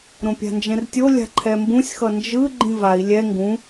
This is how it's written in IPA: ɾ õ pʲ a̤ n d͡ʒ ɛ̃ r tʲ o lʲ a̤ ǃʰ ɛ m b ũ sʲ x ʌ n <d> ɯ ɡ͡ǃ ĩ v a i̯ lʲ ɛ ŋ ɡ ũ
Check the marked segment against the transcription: incorrect: d͡ʒ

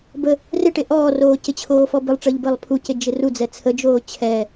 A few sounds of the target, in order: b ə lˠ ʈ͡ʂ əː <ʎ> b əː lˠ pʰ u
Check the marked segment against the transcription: correct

